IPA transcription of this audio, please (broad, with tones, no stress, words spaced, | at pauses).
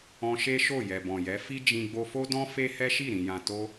ɔ̃˧ ʃe˦ʃo˦˨ jɛ˨bɔ̃˨jɛ˨˦ fi˦d͡ʒĩ˧ ɡ͡bo˧fo˦dɔ̃˦ fe˦hɛ˦ʃi˦˨ ɾĩ˨jã˨ to˧